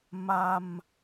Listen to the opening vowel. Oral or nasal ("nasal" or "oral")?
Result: oral